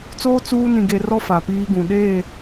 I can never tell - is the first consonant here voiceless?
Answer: yes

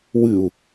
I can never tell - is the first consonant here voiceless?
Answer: no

